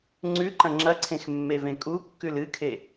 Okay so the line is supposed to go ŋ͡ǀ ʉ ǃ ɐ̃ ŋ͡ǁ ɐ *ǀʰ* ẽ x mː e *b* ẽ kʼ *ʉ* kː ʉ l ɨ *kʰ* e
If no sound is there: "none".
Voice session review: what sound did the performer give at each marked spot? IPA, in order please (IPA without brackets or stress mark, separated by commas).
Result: ǀʰ, v, u, kʰ